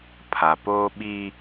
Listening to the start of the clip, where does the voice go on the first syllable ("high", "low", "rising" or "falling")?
low